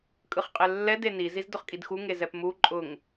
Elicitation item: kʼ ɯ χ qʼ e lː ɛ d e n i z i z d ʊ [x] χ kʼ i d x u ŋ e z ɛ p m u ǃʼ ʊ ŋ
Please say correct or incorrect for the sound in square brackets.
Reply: incorrect